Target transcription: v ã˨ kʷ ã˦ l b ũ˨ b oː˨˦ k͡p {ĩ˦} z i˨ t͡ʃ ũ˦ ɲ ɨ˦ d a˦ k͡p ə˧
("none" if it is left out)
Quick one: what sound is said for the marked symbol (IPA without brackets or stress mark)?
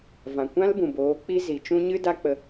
i˦